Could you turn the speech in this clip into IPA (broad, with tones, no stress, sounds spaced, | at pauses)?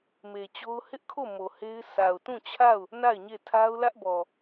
m e˨ t͡ɕ o˦ ʊ̯ h ɪ˦ ʔ kʰ o˦˨ m o˨ h e˦ ɪ̯ sʰ a˨ ʊ̯ t ũ˦˨ t͡ɕʰ a˦˨ ʊ̯ | n a˦˨ ɪ̯ ɲ e˦˨ tʰ a˦ ʊ̯ l ä˦ ʔ b ɔ˨